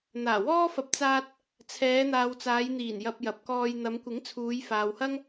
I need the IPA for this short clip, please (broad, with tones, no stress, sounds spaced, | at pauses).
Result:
n̪ aː˨˩ w ɔː˥ f ɐ˨˥ p̚ t͡s aː˧ t̚ | t͡sʰ ɛː˨˧ n̪ aː˨ w t͡s aː˨˧ j n̪ iː˨˩ n j ɐ˧ p̚ j ɐ˨ p̚ k ɔː˧ j n̪ ɐ˨˧ m kʷ ɪ˨˥ ŋ t͡sʰ uː˨˧ j f aː˨ w h ɐ˥ ŋ